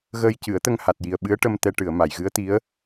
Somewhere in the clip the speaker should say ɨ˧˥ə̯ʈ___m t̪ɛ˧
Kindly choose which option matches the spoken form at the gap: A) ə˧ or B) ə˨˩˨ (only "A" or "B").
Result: A